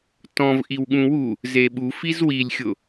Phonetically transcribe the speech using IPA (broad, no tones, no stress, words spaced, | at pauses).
tɔ̃v ʔiwɠũwu | zeɓu fizwilʲxʲʊ